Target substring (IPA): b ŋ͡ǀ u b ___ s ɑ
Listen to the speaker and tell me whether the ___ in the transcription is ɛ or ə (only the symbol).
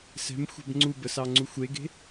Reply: ə